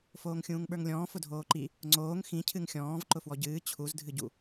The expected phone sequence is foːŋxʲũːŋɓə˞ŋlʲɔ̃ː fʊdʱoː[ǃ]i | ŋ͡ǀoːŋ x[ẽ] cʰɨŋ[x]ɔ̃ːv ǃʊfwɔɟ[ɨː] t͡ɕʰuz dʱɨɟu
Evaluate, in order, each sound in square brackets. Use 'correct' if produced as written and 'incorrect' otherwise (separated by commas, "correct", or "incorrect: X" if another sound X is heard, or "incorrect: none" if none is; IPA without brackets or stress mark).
correct, incorrect: ĩ, incorrect: xʲ, correct